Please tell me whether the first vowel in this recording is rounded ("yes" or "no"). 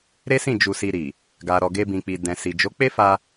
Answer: no